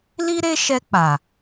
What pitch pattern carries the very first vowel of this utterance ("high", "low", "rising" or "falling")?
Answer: high